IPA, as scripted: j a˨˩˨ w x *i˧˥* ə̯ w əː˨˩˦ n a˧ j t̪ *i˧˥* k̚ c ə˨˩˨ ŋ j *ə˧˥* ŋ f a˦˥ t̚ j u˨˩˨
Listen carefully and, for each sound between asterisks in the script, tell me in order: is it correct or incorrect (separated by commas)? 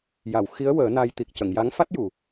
correct, incorrect, incorrect